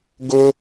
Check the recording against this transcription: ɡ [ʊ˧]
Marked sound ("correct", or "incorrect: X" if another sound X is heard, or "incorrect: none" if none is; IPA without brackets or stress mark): correct